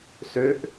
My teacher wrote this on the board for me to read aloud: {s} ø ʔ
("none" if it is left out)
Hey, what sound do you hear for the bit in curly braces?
s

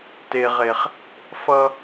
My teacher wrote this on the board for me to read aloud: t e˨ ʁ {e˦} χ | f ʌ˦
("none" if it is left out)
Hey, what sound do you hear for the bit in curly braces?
e˨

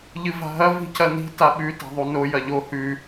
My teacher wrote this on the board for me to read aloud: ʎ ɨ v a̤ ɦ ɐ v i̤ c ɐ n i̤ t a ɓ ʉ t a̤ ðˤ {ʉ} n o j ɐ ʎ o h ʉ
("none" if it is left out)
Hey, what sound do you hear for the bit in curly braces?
u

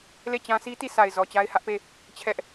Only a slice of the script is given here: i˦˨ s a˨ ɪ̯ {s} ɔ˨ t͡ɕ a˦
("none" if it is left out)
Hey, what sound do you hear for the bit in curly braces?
z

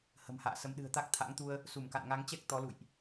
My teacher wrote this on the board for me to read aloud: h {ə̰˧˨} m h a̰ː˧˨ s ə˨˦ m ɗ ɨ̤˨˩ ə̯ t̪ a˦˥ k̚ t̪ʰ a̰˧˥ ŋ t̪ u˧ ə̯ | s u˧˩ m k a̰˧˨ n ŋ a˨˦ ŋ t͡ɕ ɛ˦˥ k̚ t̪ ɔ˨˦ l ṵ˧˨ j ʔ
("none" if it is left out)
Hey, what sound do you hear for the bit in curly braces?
ə̤˨˩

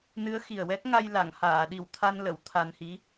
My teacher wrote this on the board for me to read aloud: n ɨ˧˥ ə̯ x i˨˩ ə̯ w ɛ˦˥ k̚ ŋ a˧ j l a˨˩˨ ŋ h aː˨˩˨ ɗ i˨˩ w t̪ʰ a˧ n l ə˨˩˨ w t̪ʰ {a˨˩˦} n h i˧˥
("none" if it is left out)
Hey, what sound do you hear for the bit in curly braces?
a˧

